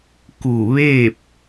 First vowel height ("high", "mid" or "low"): high